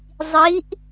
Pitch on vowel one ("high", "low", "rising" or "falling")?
rising